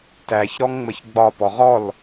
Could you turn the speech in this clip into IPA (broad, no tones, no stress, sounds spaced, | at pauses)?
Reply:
t æ ç ɾ ɔ ŋ ŋ͡m ə ç ɡ͡b ɒ p ɔ ʁ ɔ l